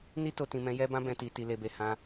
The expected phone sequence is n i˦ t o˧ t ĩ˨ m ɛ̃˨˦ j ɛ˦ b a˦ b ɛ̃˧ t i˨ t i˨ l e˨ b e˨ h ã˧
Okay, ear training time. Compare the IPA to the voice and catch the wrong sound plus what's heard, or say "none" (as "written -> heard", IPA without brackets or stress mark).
a˦ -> ã˦